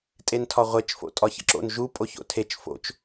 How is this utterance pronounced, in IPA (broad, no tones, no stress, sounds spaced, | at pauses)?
tʼ e n tʰ ɒ ʁʷ e t͡ʃ f o̰ tʼ ɒ ç ə̰ ǁ o̰ n ʒ u pʼ o ç o̰ tʰ e t͡ʃ f o̰ t͡ʃ